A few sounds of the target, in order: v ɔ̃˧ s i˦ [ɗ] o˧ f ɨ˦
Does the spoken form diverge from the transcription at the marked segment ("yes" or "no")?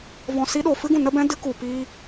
no